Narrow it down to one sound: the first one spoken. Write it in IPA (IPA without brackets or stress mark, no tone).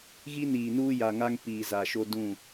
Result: ɣ